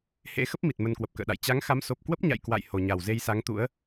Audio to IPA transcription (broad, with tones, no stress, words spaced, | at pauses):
hḛ˧˥xə˦˥p̚mi˨˩t̚ mə˧nkwə˨˩p̚kə̰ː˧˨ɗa̰˧˨j t͡ɕa˨˦ŋxa˨˦m so˨˩p̚ kwə˦˥p̚ɲa̰˧˨j kwa̰˧˨j ho˨˩ɲa˨˩wze˧jsa˨˦ŋ t̪ṵ˧˥ə̯